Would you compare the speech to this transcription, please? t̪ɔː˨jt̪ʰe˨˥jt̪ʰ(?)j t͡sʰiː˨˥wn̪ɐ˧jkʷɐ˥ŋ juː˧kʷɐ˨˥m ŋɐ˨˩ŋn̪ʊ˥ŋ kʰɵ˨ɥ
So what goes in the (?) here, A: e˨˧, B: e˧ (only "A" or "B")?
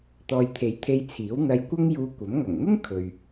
B